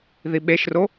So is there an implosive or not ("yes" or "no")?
yes